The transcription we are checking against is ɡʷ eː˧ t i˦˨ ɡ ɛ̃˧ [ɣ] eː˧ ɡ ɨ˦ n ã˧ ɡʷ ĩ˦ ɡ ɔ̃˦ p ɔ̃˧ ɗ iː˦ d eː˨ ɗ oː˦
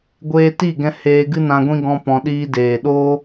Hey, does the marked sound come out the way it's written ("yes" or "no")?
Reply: no